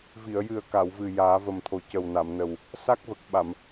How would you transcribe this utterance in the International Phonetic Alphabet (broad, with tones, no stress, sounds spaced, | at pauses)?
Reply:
v i˨˩˨ ə̯ j ɨ˨˩ ə̯ k a˨˩˨ w v ɨ˨˩ j aː˨˩˦ v ə˨˩ m t̪ʰ o˨˩ c ə˨˩ w n a˨˩˨ m n ə˨˩ w | s a˦˥ k̚ v ə˨˩ k̚ ɓ a˨˩˨ m